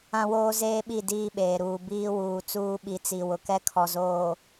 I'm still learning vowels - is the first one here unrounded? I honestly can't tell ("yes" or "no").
yes